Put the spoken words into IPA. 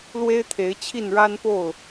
l w e˦ ɪ̯ t̪ʰ e˨˦ ɪ̯ t͡ɕʰ i˥˨ n ɻ a˦ n p o˥˨ ʊ̯

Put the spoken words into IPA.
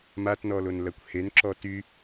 m a t n ɔ l o n l ɐ kʷ h e n ǁ ɔ t y

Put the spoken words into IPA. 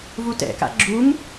v u t ɛ̰ k a̰ ɡ͡ǁ u ŋ

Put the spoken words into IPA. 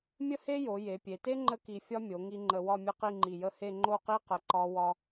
mʲ ə˥ h e˥ j o˩˧ j e˩˧ pʲ e˩˧ t e˥ ŋ͡ǃ ə˥ k i˧ fʲ ɒ˥ mʲ o˩˧ ŋ i˧ ŋ͡ǃ ə˧ w ɒ˥˧ mʲ ə˥˧ q i˥˧ ŋ͡ǃ i˧˩ j ə˥˧ h e˥˧ ŋ͡ǃ o˥˧ q i˥ q ə˧˩ ǃ ɒ˧ w ɒ˧

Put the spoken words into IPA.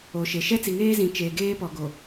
o˨ ʃ e˨ ʃ ɛ˦ t͡s i˨ ŋ eː˦ z ĩ˨ t͡ʃ eː˨ ɡ eː˦ p ɔ˨ ɡ o˨

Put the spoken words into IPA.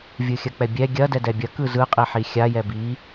vʲ ɯ xʲ ɐ k͡p ɛ bʲ ɛ ɡʲ ɐ d ɛ d ɛ bʲ ɐ k ɯ z ɯ qʼ i ħ i xʲ a j ɛ b i

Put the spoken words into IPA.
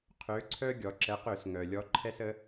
qʰ ø˩˧ ǀʰ œ˧ ɡʲ ɔ˩ ǁ ɛ˩˧ q ø˧˩˧ s ŋ œ˩ lʲ ɔ˩˧ ǃʰ ɛ˧ s ə˩˧

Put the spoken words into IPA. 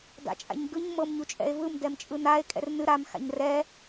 d a̰ t͡ʃʼ a̰ ɲ ɡ ɯ ɲ m ɤ m ɲ u t͡ʃʼ ɛ̰ e̯ v ɯ m d ɛ m t͡ʃʼ ɯ n a e̯ kʼ ɛ̰ r n ɨ ɾ a m x a̰ ɲ r ɛ

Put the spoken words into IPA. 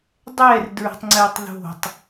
dˤ ɛ r d ɹ ə̤ tˤ ŋ͡ǀ ɛ tˤ ð o̤ tˤ

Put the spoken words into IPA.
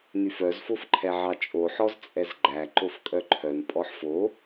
n y f œ z f o f ǃʰ ɛ ʕ ɑ t͡ʃʼ o ħ ɔ z t͡sʼ ɛ z ɡ͡ǃ æ ǃ o f kʼ œ ǃʰ œ n pʼ ɔ ħ f o

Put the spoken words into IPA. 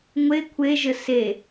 ŋʷ e kʷʰ e ʒ ə s e

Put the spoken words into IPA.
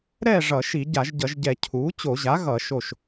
ɾ ɛ˥˨ ʐ ʌ˧˩˧ ʃ i˧˩˧ ɟ a˧˩˧ ʒ ɟ ʌ˧˩˧ ʒ ɟ ɛ˧˩˧ cʰ uː˩˥ t͡ɕ o˧˩˧ ʑ a˩˥ ɣ ʌ˧˩˧ ʃ o˥˨ ʃ

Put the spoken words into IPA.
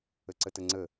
ə ǀ ə t ə ŋ͡ǀ ə

